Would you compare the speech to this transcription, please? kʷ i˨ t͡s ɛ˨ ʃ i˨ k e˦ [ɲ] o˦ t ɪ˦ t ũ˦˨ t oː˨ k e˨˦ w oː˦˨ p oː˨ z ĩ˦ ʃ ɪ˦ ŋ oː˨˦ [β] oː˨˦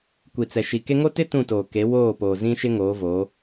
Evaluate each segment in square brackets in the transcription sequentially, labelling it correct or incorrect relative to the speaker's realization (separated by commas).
incorrect, incorrect